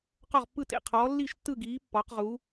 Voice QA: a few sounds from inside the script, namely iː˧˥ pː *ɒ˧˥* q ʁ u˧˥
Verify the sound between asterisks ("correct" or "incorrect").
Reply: correct